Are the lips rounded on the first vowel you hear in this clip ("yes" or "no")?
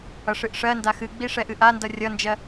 no